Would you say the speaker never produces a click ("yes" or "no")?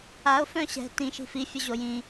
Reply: yes